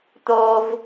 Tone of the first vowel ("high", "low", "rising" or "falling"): low